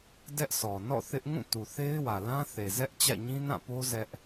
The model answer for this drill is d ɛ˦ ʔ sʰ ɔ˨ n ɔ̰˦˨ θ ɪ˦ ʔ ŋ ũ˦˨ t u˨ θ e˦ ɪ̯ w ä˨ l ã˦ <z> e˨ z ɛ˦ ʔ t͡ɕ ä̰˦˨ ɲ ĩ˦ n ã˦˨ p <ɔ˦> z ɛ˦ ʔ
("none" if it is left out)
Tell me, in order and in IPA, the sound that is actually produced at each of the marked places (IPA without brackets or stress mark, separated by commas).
θ, o˦